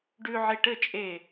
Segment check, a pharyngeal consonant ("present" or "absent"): present